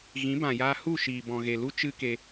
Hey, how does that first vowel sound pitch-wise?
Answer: rising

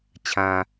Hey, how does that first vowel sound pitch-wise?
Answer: low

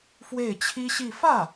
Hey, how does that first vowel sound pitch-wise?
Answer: falling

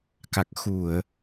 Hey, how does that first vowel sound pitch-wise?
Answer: low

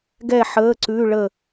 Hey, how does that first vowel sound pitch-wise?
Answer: falling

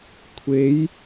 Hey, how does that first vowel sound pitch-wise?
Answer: rising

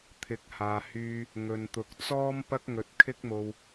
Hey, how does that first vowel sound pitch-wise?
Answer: rising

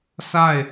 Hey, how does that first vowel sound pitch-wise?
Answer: falling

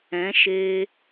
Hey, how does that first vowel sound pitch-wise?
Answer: rising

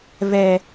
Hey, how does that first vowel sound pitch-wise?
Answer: low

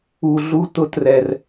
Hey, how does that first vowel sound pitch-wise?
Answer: low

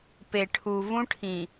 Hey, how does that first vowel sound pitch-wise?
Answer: low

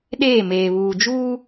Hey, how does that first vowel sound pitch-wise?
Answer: falling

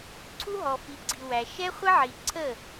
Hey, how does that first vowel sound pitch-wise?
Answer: high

